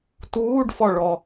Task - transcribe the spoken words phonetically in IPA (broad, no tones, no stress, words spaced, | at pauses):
tuːɖfɔ ɭɔ